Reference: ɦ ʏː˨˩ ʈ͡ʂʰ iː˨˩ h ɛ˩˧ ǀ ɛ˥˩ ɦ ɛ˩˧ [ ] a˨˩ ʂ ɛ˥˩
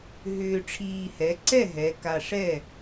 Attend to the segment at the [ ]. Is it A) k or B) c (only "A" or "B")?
A